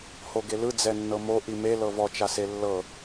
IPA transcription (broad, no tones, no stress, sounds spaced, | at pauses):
h o ɡ e l ɯ d͡z ɛ nː ɤ m o ʔ i m e l ɤ v ɔ t͡ʃ a s e lː ɤ